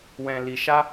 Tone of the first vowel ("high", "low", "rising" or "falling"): low